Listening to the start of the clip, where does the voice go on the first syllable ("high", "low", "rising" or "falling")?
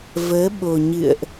rising